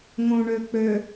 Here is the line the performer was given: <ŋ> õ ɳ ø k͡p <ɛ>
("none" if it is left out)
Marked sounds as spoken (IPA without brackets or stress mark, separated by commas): ŋ, ø